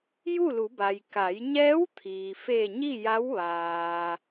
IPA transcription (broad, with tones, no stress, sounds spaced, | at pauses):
j u˥˨ l u˩˧ b a˩ j k a˩˧ j ɲ ɛː˧˥ w t̪ʰ iː˩ f e˧˩ ɲ i˥˨ j a˧˥ w ʋ aː˩